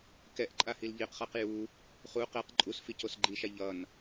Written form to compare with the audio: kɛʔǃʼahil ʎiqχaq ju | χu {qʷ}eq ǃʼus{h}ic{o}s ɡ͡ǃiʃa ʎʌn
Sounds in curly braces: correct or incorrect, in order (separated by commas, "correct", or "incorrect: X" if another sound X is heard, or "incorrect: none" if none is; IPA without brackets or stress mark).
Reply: incorrect: q, incorrect: f, correct